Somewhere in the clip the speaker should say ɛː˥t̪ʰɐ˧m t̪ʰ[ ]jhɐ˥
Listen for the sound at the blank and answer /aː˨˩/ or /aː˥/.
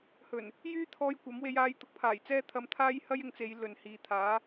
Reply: aː˥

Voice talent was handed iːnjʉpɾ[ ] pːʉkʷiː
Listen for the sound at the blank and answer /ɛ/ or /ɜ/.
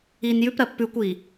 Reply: ɜ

